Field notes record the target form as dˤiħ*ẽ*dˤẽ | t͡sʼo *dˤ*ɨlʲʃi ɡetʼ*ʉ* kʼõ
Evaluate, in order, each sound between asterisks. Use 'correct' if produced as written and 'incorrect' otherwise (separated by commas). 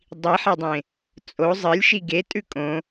incorrect, incorrect, correct